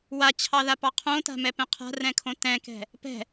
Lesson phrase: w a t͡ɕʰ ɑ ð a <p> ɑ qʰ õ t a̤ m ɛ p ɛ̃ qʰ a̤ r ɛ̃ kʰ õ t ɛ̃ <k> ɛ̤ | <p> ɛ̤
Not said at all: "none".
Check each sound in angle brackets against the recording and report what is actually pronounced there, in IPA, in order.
p, k, p

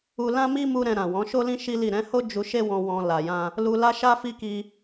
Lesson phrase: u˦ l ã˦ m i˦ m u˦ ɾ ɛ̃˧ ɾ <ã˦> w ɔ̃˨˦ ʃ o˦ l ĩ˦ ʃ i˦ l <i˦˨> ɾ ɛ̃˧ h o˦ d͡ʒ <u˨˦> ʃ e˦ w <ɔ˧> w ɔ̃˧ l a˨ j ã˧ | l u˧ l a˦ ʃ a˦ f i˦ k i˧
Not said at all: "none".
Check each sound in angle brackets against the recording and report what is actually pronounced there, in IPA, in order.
ã˨, i˦˨, u˧, ɔ̃˧

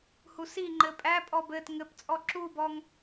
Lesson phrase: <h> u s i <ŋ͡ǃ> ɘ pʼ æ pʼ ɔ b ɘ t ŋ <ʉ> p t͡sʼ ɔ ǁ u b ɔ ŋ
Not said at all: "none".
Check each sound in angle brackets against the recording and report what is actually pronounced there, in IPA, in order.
h, ŋ͡ǃ, ɘ

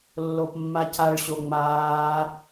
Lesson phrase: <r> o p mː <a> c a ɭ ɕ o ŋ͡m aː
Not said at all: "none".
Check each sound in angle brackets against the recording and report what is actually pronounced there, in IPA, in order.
lː, a

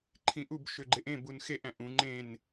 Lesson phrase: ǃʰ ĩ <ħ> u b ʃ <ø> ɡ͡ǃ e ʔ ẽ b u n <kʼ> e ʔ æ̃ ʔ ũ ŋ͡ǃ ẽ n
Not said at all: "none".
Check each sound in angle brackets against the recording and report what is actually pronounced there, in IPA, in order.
ʔ, ø, x

